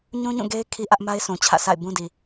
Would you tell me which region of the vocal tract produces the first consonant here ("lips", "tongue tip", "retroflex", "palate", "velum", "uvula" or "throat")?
palate